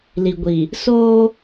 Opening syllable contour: low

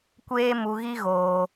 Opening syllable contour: high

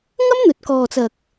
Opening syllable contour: high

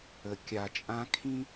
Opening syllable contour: low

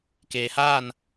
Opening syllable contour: low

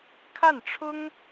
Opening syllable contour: falling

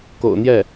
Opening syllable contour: low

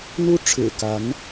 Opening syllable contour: high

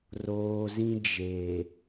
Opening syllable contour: low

